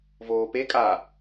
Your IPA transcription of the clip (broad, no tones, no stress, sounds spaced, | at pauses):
v oː p e kʼ a